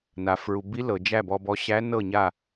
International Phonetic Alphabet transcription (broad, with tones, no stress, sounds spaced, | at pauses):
n a˩ f ɹ u˩ b i˧˥ l ɤ˩ d͡ʒ æ˥˨ b ɔ˧ b ɔ˧˥ ɕ æ˧˥ n ɤ˥˨ ɲ a˥˨